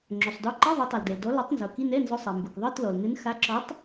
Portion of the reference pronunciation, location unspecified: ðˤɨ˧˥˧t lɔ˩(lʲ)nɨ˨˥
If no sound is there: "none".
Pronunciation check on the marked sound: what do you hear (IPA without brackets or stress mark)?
l